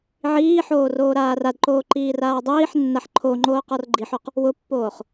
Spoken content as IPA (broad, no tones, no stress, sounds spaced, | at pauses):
ʕ iː ħ oː r oː ɾ aː r a d ǃ oː ǃ iː r aː dˤ iː ħ nː a ħ ǃʰ o ŋ͡ǃ oː q ɔ r ɡ͡ǃ i ħ o q | w ʊ pː oː χ